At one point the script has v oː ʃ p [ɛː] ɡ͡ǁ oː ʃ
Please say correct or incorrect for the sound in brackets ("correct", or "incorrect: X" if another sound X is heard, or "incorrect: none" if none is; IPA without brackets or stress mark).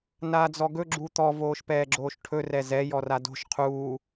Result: correct